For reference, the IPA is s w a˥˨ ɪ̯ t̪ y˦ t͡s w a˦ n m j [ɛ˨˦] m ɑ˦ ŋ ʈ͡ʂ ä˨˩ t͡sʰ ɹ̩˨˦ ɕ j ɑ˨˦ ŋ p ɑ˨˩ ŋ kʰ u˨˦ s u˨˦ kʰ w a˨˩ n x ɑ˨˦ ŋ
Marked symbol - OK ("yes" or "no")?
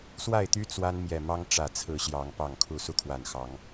no